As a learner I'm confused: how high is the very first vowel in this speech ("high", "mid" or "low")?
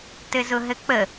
mid